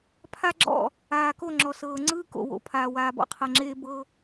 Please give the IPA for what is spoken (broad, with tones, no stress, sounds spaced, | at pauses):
pʰ a˦ ɡ͡ǁ ɔ̰˦˨ | aː˨ k o˦˨ ŋ͡ǁ ɔ˨ s ɤː˨ ŋ͡ǀ ɯː˦ k o̰˨ w o̰˨ pʰ aː˨ w aː˨ b ɔ̰˦ qʰ ɤ˨ ŋ͡ǁ eː˦ b ɤ˦